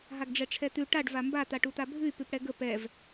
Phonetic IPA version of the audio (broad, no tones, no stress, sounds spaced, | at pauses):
ɦ a ɡ ɖ͡ʐ ɛ ʈ͡ʂʰ ɛ t̪ ʉ ʈ a ɖ v a m b a t̪ a ʈ u t̪ a bʱ ʉ y̯ p ʉ p ɽ ɛ ɡ ə p ɛ v